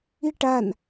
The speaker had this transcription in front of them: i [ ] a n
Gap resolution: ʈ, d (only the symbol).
ʈ